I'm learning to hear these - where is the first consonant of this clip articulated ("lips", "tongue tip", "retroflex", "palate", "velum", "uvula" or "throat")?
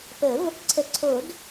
lips